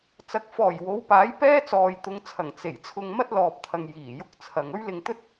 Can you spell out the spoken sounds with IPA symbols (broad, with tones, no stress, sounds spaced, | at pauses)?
t͡s ɐ˨ k̚ f ɔː˨˩ j w o˨˧ w p aː˨˥ j p ɛː˥ t͡s ɔː˨ j t̪ ʊ˨˧ ŋ t͡sʰ ɐ˨˩ ŋ t͡s e˨˩ j t͡sʰ ʊ˧ ŋ m ɐ˥ t̚ l ɔː˨ p̚ t̪ʰ ɐ˨ ŋ j iː˨˩ j ʊ˥ k̚ t͡sʰ ɐ˨ ŋ ɵ˥ ɥ l ɪ˧ ŋ t̪ ɵ˥ t̚